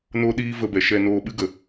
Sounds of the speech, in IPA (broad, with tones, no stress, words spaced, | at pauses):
noː˦ɗiː˦ və˧bɛ˨ ʃɛ˧noː˧ ɓɨ˦ɡə˨